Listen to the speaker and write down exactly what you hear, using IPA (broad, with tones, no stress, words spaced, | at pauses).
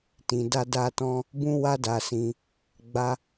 tĩ˧da˦da˦tɔ̃˦ | bũ˦wa˦da˧sĩ˧ | ɡ͡ba˦